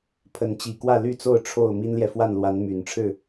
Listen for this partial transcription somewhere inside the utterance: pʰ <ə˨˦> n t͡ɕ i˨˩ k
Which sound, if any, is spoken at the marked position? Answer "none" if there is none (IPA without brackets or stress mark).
ə˨˦